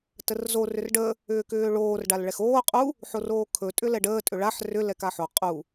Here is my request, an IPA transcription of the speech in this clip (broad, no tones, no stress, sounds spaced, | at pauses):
t ə r z o r ʏ r ɖ ə | ʏː k ʏː ɭ oː r ɖ a l ɭ ɛ x oː qʼ u | ħ o r oː kʰ ɵ tʼ ʏ l ɛ ɖ əː tʼ ʏ ɭ a ħ r ʏ l ɛ k a ħ o qʼ u